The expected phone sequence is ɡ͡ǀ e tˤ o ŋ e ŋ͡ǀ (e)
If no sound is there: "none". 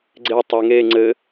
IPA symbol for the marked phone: ɘ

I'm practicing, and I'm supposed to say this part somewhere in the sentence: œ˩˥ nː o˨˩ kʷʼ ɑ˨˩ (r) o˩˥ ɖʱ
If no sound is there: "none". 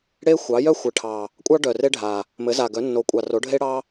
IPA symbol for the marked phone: r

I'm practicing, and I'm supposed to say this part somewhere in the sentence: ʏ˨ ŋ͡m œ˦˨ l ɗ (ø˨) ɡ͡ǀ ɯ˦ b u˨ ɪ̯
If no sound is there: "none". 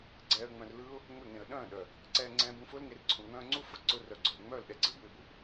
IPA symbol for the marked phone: ɛ˨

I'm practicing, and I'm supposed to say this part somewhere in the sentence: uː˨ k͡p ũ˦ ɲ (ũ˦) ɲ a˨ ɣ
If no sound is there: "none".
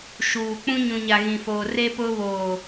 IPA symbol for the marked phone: ũ˨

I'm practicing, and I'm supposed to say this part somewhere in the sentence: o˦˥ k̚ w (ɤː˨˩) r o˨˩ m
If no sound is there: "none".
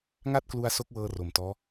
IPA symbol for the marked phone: ɤː˧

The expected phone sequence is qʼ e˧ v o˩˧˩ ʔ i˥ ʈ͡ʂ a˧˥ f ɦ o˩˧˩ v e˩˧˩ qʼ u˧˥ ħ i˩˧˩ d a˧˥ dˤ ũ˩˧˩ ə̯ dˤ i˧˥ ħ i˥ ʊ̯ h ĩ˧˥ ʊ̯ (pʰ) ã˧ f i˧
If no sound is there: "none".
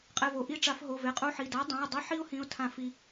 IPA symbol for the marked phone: tʰ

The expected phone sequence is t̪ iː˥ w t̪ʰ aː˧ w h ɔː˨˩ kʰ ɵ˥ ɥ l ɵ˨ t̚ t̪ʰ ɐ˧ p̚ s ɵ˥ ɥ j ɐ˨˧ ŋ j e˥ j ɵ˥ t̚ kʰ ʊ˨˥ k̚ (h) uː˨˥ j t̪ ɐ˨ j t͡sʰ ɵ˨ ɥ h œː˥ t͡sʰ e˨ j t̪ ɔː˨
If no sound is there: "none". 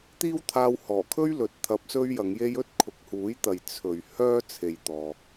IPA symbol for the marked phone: h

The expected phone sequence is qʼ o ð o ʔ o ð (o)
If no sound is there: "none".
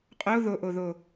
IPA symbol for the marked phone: o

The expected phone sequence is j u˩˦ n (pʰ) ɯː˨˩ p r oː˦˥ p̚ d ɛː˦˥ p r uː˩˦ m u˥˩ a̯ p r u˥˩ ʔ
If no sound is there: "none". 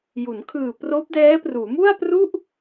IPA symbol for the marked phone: kʰ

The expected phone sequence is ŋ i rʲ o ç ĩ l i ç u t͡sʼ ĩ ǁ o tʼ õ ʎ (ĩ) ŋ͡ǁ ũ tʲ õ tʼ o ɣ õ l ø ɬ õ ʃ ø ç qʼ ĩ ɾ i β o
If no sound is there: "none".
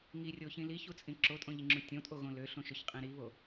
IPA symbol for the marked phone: i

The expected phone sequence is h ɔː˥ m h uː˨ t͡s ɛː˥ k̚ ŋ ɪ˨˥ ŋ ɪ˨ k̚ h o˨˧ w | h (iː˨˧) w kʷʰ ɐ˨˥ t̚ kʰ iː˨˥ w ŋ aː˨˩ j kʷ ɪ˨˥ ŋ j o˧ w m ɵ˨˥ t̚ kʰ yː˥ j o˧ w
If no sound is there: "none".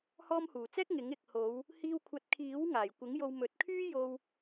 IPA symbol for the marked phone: iː˧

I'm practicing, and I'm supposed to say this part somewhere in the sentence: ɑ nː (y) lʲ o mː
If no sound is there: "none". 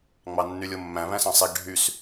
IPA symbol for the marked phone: y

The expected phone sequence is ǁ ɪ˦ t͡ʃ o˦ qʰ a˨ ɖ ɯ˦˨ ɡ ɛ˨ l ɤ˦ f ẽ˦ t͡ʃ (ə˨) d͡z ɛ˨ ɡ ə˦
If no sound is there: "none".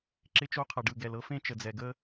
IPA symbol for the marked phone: ə˨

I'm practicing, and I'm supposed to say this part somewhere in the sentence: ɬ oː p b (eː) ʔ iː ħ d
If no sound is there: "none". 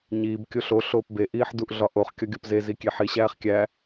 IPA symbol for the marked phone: e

